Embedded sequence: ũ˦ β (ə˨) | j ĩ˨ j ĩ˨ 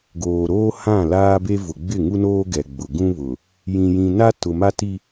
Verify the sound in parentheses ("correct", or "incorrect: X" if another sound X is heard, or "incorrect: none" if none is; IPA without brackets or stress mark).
incorrect: ʊ˨